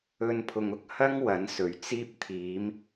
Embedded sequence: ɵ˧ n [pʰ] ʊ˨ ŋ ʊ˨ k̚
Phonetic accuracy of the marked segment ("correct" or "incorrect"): correct